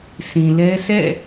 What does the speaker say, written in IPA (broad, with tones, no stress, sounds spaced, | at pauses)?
s ĩ˨ l ɛ˦ sʰ ɛ̰˦˨